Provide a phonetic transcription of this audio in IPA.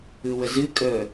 ɯ w ə z ɨ kʼ ə

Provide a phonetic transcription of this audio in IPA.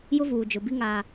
j ʊ˦ v uː˨ d͡ʒ ʊ˨ b i˦ ŋ aː˦

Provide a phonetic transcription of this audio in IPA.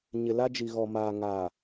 ɲ ɪ˨ l a˦ d͡ʒ i˨ ɣ ɔ˨ m aː˨ ŋ aː˨

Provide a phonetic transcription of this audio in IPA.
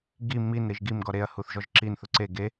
ɡ i m i n ɾ i ʒ ɡ i m ɡ ɔ ɾ e ɐ̯ h u θ ʒ ɔ ʒ ǁ i n θ ʊ ǀ e ɡ e

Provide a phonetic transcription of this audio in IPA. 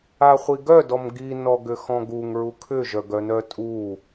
a χʷ i ɡ œ d ɔ m ɡ i n ɔ ɡ ʏ x ɔ̃ ɡ u ŋ ɹ u kʰ ʏ ʒ œ ɡ œ n œ tʼ u

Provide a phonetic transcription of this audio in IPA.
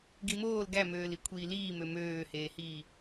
ɡ i m oː l ɡ æ m øː l i kʷʰ iː l iː m ø m øː h eː h iː

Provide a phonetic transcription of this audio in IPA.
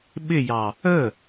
ɓ ɪ j ɑ | ə

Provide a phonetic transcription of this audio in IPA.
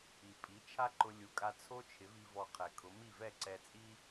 i˩ pʼ i˩˥ t͡ʃʰ a˥ ǃ ʊ˧ lʲ u˩˥ kʼ a˧ t͡sʰ o˥ t͡ʃʰ ɪ˩˥ v i˧ v ɔ˧ qʰ ɛ˩ kʰ ʊ˩˥ m i˥˩ v ɛ˥˩ ǀ ɛ˧ t͡sʼ i˥

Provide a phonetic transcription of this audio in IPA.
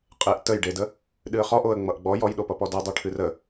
qʼ e ʔ t ə j ɖ e d ə | ɗ ɨ ə̯ χ ɔ ʔ o ə̯ ŋ͡m ʌ ʔ ɡ͡b ɔ j ɔ j ɗ o p ʌ p ɔ d ʌ dˤ u ʈʰ ɨ r ə

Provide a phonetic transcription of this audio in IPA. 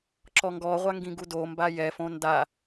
ǁ ɔ ŋ ɡ ɔ ʁʷ a ŋ ɡ ĩ ɡ u d o m b a j ɛ f õ n d a

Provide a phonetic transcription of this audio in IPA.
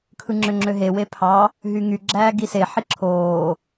kʰ ɯ ŋ͡ǁ ø ŋ͡ǁ ø ɦ e w e pʰ ɑ | ɦ y ŋ y ɡ͡ǁ æː ɡ i s e ħ i ǁʰ oː

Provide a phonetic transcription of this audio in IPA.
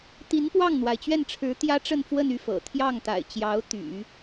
t̪ i˧˥ n p w ɑ˥˩ ŋ n̪ w a˩ ɪ̯ t͡ɕ ɥ ɛ˥˩ n ʈ͡ʂʰ ɻ̩˧˥ t̪ j ä˥ ʈ͡ʂ ə˥˧ n f w ə˥˧ n y˥˩ f ɤ̰˨˩ t̪ʰ j ɑ˥˩ ŋ t̪ a̰˨˩ ɪ̯ t͡ɕ j ɑ˧˥ ʊ̯ t̪ y̰˨˩˦

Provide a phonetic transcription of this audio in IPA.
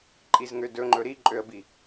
ǃʼ i z ŋ ø d ɵ ŋ͡ǃ ɵ ɾ i ǃʼ ø ə̯ b i

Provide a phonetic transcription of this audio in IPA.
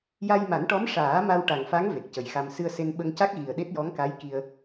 j a˧ j m a˨˩˦ n ʈ ɔ˧˥ m ʂ aː˨˩˦ m a˧ w ʈ a˨˩ ŋ f a˧˥ ŋ v e˨˩ k̚ c ə˨˩ j x a˧ m s ɨ˧ ə̯ s e˧ n ɓ ə˧ ŋ c a˦˥ k̚ ɣ i˨˩ ə̯ ɗ e˦˥ t̚ j ɔ˧˥ ŋ k a˧˥ j k i˧ ə̯

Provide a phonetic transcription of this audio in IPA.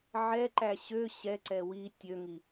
ʕ ɛ ǃ æ ɕ ø ɕ ɛ ǀ ɛ w i tʲ ø ŋ i

